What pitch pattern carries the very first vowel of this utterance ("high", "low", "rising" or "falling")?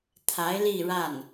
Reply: rising